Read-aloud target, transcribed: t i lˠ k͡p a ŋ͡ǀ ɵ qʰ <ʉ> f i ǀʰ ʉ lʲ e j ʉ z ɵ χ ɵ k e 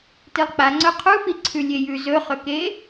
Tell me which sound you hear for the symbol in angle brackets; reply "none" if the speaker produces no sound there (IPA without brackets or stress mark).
u